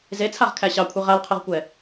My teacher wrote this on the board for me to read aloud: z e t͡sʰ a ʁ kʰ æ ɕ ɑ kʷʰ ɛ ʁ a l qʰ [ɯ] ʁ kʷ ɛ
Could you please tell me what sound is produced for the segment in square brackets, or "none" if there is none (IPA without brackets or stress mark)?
ɯ